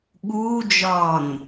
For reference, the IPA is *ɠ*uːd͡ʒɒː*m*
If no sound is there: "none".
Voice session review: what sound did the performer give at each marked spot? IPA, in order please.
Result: ɠ, n

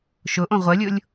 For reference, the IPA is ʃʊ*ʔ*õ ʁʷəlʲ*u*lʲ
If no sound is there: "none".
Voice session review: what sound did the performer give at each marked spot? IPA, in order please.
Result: ʔ, ʊ

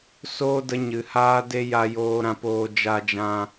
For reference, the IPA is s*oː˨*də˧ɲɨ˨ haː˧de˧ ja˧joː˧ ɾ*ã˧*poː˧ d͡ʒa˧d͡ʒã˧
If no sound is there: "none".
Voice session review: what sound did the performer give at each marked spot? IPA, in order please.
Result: oː˦, ã˧

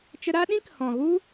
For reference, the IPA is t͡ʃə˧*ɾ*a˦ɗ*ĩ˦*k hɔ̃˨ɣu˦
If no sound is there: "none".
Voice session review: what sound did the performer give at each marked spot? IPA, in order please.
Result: ɾ, ĩ˦

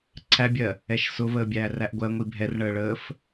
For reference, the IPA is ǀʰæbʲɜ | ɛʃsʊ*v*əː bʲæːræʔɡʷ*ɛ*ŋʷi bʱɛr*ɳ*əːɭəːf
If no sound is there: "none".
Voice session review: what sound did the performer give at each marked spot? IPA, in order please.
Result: v, ɜ, ɳ

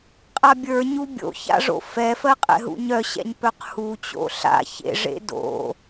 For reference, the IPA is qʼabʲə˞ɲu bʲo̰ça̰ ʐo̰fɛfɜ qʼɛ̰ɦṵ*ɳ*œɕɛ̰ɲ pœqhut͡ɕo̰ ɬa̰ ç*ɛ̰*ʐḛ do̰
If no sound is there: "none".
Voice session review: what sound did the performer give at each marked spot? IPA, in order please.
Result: ɲ, ḛ

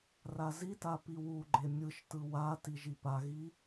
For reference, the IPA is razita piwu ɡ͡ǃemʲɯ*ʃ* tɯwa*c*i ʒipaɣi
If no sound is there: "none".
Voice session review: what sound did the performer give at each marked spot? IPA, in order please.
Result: ʃ, t

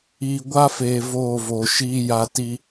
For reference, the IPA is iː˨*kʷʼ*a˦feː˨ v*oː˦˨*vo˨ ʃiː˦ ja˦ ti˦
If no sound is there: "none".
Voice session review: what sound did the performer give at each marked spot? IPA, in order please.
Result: ɡʷ, oː˦˨

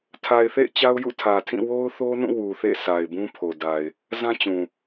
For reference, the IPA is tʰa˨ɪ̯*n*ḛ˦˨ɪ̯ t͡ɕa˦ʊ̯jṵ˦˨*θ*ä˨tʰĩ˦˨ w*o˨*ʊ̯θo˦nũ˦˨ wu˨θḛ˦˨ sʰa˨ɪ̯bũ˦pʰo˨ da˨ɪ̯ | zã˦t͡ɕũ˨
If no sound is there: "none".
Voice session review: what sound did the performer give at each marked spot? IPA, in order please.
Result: θ, tʰ, o˦

